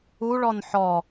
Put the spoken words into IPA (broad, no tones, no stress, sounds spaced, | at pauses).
u ɭ ɔ n ħ ɔ